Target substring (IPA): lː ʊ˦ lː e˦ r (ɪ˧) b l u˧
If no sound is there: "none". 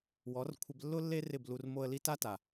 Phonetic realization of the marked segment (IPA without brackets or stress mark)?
ɪ˦˨